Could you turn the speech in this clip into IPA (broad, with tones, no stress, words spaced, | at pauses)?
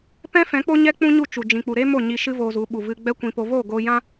pɛ̃˦fɛ̃˨˦k͡po˦ɲɛ˦ k͡pũ˦ɲu˦˨t͡ʃu˨ d͡ʒĩ˨k͡pu˨ɾe˦ mo˦˨ɲi˧ ʃɨ˦voː˧zu˨˦ ɓu˨ vɨ˧ɡ͡bɛ˦kʷĩ˧po˧ vo˦˨ɡo˧jã˦